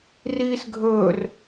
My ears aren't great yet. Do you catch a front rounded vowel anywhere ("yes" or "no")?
no